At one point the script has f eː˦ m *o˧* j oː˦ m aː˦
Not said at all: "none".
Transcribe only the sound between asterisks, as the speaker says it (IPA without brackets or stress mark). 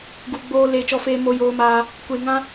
o˦